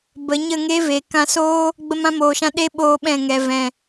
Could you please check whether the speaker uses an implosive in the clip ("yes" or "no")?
yes